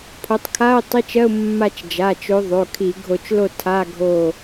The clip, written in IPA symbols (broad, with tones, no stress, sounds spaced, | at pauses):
pʰ o˨˦ tˤ kʰ a˧˥˧ ʊ̯ tˤ i˧˥˧ t͡ʃ ɜ˧˥˧ ʊ̯ mː a˦˨ t͡ʃ d͡ʒ a˩˧˩ t͡ʃ o˨˦ ðˤ o˩˧˩ kʰ i˧˩˧ ɡʱ o˧˩˧ t͡ʃ l o˦˨ tʰ a˧˥˧ ɡʱ o˦˨